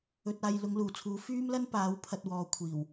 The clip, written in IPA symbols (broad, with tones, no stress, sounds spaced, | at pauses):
ɵ˧ t̚ aː˧ j l ʊ˨˧ ŋ l uː˨˩ t͡sʰ uː˨˥ f yː˥ m l ɐ˥ n p aː˨˥ w pʰ ɐ˧ t̚ w ɔː˨ kʷʰ iː˨˩ w